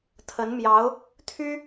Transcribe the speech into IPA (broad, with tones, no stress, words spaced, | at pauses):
t̪ʰə˧˥nmjɑ˧˥ʊ̯ | t̪ʰy˥